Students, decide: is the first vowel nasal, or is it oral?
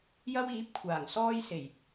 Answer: oral